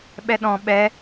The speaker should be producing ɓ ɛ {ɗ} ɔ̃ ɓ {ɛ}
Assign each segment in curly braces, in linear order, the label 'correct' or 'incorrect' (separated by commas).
correct, correct